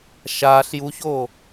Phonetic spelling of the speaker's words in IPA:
ʃ aː ɬ j u ç oː

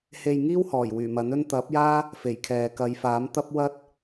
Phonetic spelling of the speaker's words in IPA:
h e˧ j ŋ iː˥ w h ɔː˨˩ j w yː˨˩ m ɐ˨˥ n ɵ˥ n t̪ ɐ˨˥ p̚ j aː˥ | f e˨˩ j kʰ ɛː˨ k ɐ˨˧ j f aː˨˥ m t̪ ɐ˥ p̚ w ɐ˥ t̚

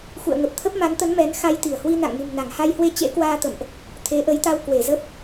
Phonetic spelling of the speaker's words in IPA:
x ṵ˧˨ ə̯ ŋ ə˨˩ p̚ t̪ʰ ə˦˥ p̚ m a˨˦ n t̪ ə˨˦ n m ɛ˨˦ n x a˧ j t̪ i˧˩ ə̯ h w i˧ n a̰˧˨ ŋ n ṳ˨˩ m n a˧˩ ŋ h a˧ j h w e˧ t͡ɕ ḛ˧˥ k w aː˧ t̪ ə̰˧˨ m ʔ | t̪ʰ e˨˦ ʔ ə˨˦ j t̪ a˧ w k w e˧˩ z ə˦˥ p̚

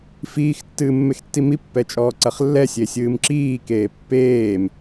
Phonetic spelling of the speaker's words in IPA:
f iː x tː ɨː mː e x tː i m i pː ɛ t͡ʃʼ ɔː ǀ ɐ χ lː ɛ sʲ e sʲ ɨː m ǁ iː k eː pː eː m

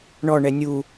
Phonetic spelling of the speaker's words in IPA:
ɳ ɔ ɳ ɛ nʲ u

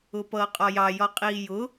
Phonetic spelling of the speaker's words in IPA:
ʊ p ʌː qʼ ɒ j ɑ j ɒ qʼ iː j ʊ

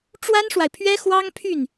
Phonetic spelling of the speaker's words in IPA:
ʈ͡ʂ w a˥ n ʂ w a˨ ɪ̯ pʰ ɥ ɛ˥ x w ɑ˥ ŋ pʰ y˥˩ n

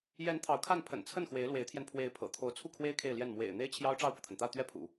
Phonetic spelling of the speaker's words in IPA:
j ɛ˧˥ n t̪ʰ ɑ˧˥ ʊ̯ kʰ a˥˩ n pʰ ə̰˨˩ n t͡sʰ ə˥˩ n x w e˧˥ ɪ̯ l w e˧˥ ɪ̯ t̪ʰ j ɛ˧ n pʰ w e˧˥ ɪ̯ pʰ ɤ̰˨˩ t̪ʰ o˧˥ ʊ̯ t͡sʰ u˥˩ kʰ w e˥ ɪ̯ kʰ e˥˧ ɪ̯ l j ɛ˥˩ n m w ḛ˨˩ ɪ̯ n̪ e˥ ɪ̯ t͡ɕʰ j ɑ˥ ʊ̯ ʈ͡ʂ ɑ˥˩ ʊ̯ p ɤ˩ t̪ʰ ə˩ n t̪ ä˥˧ t̪ ɥ ɛ˥˩ pʰ ṵ˨˩˦

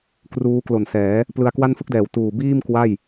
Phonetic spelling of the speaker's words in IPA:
k r uː˦˥ k l o˨˩ n s ɛː˩˦ | p l ɯ˧ a̯ k w a˥˩ n f ɯ˥˩ k̚ d ɛː˨˩ w t uː˨˩ b iː˥˩ m k w a˥˩ j

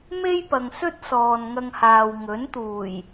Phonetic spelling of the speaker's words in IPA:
m e˥ j p ɐ˨ ŋ s ɵ˥ t̚ s ɔː˨ n ŋ ɐ˧ ŋ h aː˨ w ŋ ɵ˨˥ n t̪ uː˨˩ j

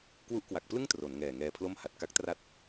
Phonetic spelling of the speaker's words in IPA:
k w u˦˥ ʔ k w a˨˩ k̚ p l ɯ˥˩ ŋ t r o˩˦ n ŋ ɛː˨˩ ŋ ɛː˧ pʰ l o˥˩ m h a˨˩ t̚ k a˦˥ k̚ t r a˦˥ t̚

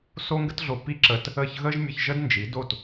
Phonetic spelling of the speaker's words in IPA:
s o˥ ŋ ɡ ə˥ t ɮ o˧ p i˥˩ ǁ əː˧ t | əː˥˩ ç ɣ əː˥ ʒ mʲ ə˧ ç ʒ ə˥ d n d͡ʒ i˩˥ d o˥˩ t

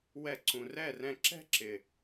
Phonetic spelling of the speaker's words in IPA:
w ɛ˧ ǀ ũ˨ r ɛ˦˨ r ɛ̃˧ ǁ ɛ̤˦ ǁ ɪ˨

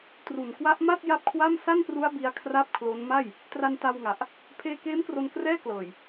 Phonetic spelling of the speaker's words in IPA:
t r u˨˩ n k w a˦˥ ʔ m a˥˩ t̚ j a˥˩ p̚ kʰ w a˥˩ m s a˥˩ n p r u˦˥ a̯ b i˦˥ a̯ kʰ r a˥˩ p̚ kʰ l o˦˥ n m a˥˩ j | t r a˧ n t a˧ w ŋ a˨˩ ʔ | pʰ eː˧ k eː˦˥ m k r o˧ n k r ɛː˥˩ k l ɤː˨˩ j

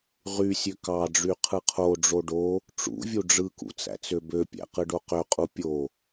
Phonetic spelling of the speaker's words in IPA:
ʁ y sʲ ø k ɑ ɖ͡ʐ y qʰ ɯ qʰ o ɖ͡ʐ o ɖ o | ʈ͡ʂ ṵ vʲ u ɖ͡ʐ ɯ k ṵ t͡s æ̰ t͡s ø b ø pʲ æ̰ q ɯ ɖ o q ø qʼ u pʲ o

